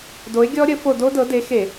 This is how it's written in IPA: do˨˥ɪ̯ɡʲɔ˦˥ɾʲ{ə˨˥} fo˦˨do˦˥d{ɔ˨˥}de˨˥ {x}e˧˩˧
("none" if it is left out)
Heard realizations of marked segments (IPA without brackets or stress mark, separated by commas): ə˨˥, ɤ˨˥, x